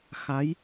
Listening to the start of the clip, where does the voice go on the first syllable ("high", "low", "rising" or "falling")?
rising